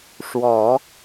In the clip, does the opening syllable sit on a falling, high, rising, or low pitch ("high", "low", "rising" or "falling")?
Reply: low